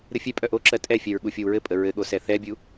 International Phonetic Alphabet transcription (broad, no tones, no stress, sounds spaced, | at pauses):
ɾ ɘ fʲ ɛ pʼ œ ʔ o ǁ ɜ tʼ ɛ fʲ ɛ ɹ ɠ u fʲ o w ɹ ɘ pʼ ə ɹ ɘ ɠ o s ɛ θ ɛ bʲ u